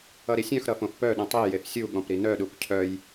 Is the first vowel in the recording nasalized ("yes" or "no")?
no